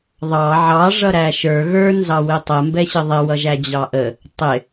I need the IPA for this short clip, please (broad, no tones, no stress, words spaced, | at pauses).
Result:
ðˤɑ ʕɑ ʐʌɾæʃə˞ ɣə˞ nzɑwɪtˤə mbɛɕəðˤɪ wʌʒæd͡ʑɑʔə | tˤɪ